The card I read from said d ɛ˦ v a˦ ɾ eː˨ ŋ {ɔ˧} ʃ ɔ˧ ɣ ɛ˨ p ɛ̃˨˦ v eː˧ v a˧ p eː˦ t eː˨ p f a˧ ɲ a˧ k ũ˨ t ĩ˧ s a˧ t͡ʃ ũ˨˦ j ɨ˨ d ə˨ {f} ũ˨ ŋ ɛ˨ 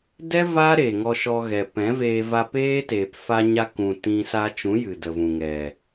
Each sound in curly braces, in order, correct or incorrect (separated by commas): correct, incorrect